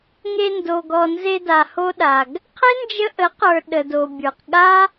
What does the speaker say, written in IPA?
ŋe˧ndo˨ɡɔ˨ nze˧da˨ho˧ɗa˨ɡ | qʰe˦nd͡ʒə˧ʔə˨˦qə˞˨ ɗə˨do˨bʲə˞˨q ɠa˦

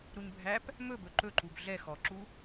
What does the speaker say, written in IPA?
ɾuɲbʱæp | mɵbɵ ǃɵǃub ɮɛ xɔǁu

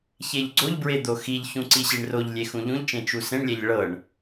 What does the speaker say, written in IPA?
çeʎɡ͡ǀoʎbɹe d̪oxiʎçũ ǀiɕiɳroʎlʲe xũʎũʎt͡ʃẽ t͡ʃusẽɳlʲɛʎ ɭɤɳ

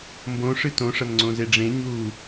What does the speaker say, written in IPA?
mbõʂɨ tõʂɐn ŋ͡ǀõzeɖ͡ʐẽ ɲuː

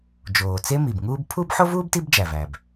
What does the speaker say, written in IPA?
d͡ʒoː˩t͡se˥mi˩bŋuː˥b pʰu˥b ħo˥vuː˥b ti˥bd͡ʒæ˩væ˩b

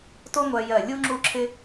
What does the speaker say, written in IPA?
to˥ŋʷɜ˧ jɜ˧˩lʲu˥ ŋ͡ǁu˥˧ǁʰɪ˥

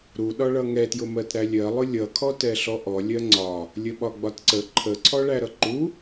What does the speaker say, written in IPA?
ɾuɗɒɭʌ ŋɛtjʊmɜt ɾælʲɜlˠʊ lʲʌkʰɔt ɛɬɔʔɔlʲɜ ŋ͡ǀɒ | lʲəɓɒɡ͡bɒtǀə ǃʰəǀʰɔɭæ ɾʌǃu

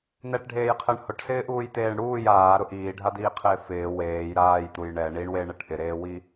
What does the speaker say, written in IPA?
n̪ɛʈɖʱeːjqʰɛɳ hʊʈsɪːʔuːjt̪eːɳ ɽuːj aːɾʊ ʔiːɖʱad̪iːqʰɪː fɪː weːj ɾaːjt̪uj ɳɛ ɳiɳweɳɛʈ ʔɪɾeːwi

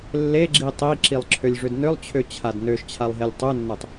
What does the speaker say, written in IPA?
lːeɡ͡ǁi tˤiǁilˠǁʰølʲʐʏd nʏlˠt͡ɕʰøt͡ɕʰad nøʃt͡ɕʰalˠɦelʲ tˤønːøtˤ

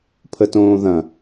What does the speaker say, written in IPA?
pʰətõːðɐ̃

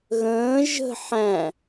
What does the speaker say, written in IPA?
ɣə̃ː ʒə̤ ħæ̃

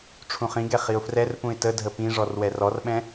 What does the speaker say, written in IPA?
ʈ͡ʂʰũχĩɡɛ χiʊ̯frɛrpũɪ̯ tədʱə pĩʐɔr wɛrɔrɓɛ̃

